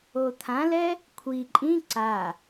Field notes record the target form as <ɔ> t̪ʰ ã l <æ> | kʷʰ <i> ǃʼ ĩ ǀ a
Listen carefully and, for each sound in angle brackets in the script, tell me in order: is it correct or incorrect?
incorrect, incorrect, correct

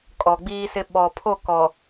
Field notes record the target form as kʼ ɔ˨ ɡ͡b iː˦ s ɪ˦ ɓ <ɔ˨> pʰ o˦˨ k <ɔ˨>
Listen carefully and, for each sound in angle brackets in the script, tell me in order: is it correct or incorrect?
correct, correct

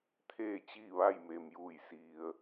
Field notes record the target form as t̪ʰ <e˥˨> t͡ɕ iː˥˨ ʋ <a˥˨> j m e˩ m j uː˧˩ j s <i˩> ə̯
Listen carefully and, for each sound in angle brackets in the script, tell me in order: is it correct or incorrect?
incorrect, correct, correct

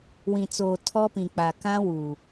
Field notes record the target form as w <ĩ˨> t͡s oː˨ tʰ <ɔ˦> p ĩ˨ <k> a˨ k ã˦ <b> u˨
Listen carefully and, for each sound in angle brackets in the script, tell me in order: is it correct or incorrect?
correct, correct, incorrect, incorrect

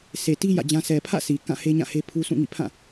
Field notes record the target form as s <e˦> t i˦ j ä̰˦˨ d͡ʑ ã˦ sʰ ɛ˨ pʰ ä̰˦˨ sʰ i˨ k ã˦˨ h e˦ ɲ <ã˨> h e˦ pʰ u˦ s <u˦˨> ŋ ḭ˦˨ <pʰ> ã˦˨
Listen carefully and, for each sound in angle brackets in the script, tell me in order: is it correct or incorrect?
incorrect, incorrect, incorrect, correct

